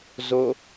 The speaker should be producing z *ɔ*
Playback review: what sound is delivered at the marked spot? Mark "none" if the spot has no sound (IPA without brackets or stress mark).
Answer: o